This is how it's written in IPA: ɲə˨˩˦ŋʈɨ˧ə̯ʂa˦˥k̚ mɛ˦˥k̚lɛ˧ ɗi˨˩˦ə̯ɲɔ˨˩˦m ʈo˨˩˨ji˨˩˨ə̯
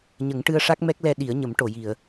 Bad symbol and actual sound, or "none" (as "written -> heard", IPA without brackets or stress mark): ɔ˨˩˦ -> ə˨˩˦